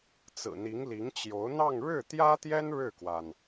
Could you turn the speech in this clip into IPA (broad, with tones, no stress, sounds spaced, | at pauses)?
t͡s ɹ̩˨˩ n̪ i˧˥ ŋ l i˧˥ ŋ t͡ɕ j o˧˥ ʊ̯ n̪ ɑ˥˧ ŋ ɻ ɻ̩˥˩ t̪ j ä˥ t̪ j ɛ˥ n ɻ ɻ̩˥˩ k w a˩ n